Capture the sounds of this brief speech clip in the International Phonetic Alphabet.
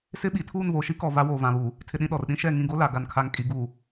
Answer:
s ɪ˦ ɓ i˨ tʰ uː˦˨ n v oː˨ ʃ i˦ k ɔ˨ v a˦ w oː˨ v ã˨ β uː˨ | tʰ ɪ˨ ɗ ĩ˨ ɗ ɔ˨ r ɗ ĩ˦ ʃ ɛ˦˨ ŋ ĩ˦˨ ɡ o˦ l a˨ ɡ a˨ n kʰ a˨ ŋ kʼ i˨ ɡ uː˨

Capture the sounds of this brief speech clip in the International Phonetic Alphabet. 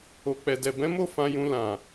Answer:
o˨ k͡p ɛ˨ d ɛ˨ b ɛ̃˨˦ m o˦˨ f ã˧ j ũ˧ l ã˨

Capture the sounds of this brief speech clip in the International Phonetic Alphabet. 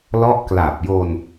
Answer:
l ɔ˦˥ ʔ k l a˨˩ p̚ j o˧ n

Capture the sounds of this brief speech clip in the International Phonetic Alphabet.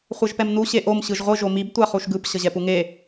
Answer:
χʷ ɛ ʒ p ɛ m n u ɕ e ʔ o m ɕ ɯ ʒ ʁʷ ɯ ʒ o m i b tʷ a χ u ʃ ɡ ɯ p ɕ ʌ ʑ ɛ p u ŋ e

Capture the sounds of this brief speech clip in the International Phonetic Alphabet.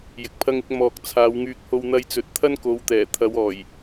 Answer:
j ɪ˨ k̚ pʰ ɐ˥ ŋ ɪ˧ k̚ m ɔː˨ k̚ t͡sʰ aː˨˧ w ŋ yː˧ k̚ h o˧ w n̪ ɐ˧ j t͡s ɵ˨˥ t̚ t̪ʰ ɐ˥ n k o˨˧ w t̪ ɛː˨˩ t̪ʰ ɐ˨˧ w ɔː˨˩ j

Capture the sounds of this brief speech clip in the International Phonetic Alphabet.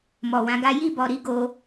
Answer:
m ɔ˨ w ã˨˦ ɡ a˦ j i˦˨ b ɔ˨ ɾ i˨˦ ɡ o˧

